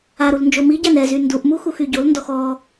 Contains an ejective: no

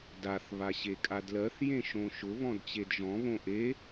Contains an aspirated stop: no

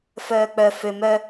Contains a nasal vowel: no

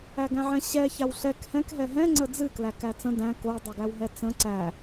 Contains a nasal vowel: yes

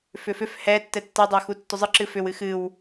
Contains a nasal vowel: no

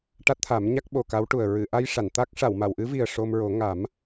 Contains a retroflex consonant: yes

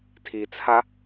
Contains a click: no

